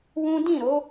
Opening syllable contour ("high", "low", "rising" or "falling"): high